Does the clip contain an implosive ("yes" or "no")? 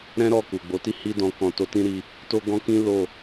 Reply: no